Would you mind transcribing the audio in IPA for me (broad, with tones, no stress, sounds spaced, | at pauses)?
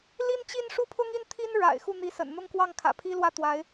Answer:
l i˥ n t͡ɕ i˥˧ n ʂ u˥˩ pʰ ʊ˥ ŋ i˥˩ n t̪ʰ i˥ n ɻ a̰˨˩ ɪ̯ x u˥˩ n̪ i˧˥ s ə̰˨˩ n n̪ ʊ˥˧ ŋ k w ɑ˥˩ ŋ kʰ ä̰˨˩ pʰ i˥ l w ä˥˩ t̪ w a˧˥ ɪ̯